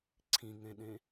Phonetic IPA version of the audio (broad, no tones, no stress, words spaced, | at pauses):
ǀʰĩŋẽɗẽ